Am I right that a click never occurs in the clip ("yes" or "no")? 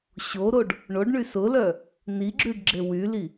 no